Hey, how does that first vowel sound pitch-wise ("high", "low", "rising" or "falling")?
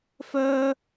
high